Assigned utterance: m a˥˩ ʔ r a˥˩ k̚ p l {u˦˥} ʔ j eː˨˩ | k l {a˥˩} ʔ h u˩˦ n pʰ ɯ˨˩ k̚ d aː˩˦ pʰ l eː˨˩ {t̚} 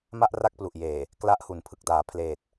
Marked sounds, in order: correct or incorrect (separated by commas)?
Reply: incorrect, incorrect, correct